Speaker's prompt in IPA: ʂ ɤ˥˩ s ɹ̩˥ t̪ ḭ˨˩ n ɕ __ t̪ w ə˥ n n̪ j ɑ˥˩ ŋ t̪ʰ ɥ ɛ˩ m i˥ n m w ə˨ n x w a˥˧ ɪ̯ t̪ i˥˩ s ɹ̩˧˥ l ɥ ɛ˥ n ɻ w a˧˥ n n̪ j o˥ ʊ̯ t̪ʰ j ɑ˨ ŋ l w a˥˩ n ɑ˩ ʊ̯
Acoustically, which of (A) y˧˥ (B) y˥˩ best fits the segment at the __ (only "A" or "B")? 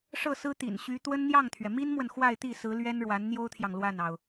A